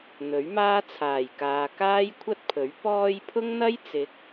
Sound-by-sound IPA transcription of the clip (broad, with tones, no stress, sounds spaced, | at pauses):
n̪ ɵ˨˥ ɥ m aː˥ t͡sʰ aː˨˩ j k aː˨ k aː˥ j kʷʰ ɐ˥ t̚ pʰ ɵ˨˥ ɥ p ɔː˧ j pʰ ʊ˥ ŋ n̪ ɐ˥ j t͡s ɪ˨˥ k̚